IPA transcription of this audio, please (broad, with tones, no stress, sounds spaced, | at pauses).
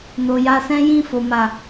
n o˨ j a˧ s ɛ̃˦ j ĩ˦˨ f o˨ m a˨